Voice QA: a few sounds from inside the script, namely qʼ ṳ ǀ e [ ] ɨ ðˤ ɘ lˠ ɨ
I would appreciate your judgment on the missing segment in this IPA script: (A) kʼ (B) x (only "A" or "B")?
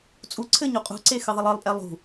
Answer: B